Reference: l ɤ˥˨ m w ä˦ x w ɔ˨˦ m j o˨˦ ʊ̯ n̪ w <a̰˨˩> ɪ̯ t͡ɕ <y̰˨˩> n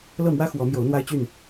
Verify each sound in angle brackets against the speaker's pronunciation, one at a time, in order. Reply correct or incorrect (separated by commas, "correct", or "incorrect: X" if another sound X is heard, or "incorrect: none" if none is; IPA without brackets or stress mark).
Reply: incorrect: a˦, incorrect: y˥˨